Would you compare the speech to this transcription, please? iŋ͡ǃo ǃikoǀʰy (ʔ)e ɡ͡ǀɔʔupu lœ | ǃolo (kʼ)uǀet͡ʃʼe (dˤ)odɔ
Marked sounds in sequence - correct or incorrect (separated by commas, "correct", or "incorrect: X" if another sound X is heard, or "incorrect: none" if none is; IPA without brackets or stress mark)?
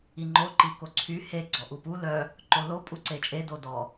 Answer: incorrect: h, incorrect: pʼ, incorrect: d